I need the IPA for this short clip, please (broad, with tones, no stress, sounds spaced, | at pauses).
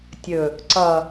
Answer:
tʲ ɵ˨ | ǀ ʌ˨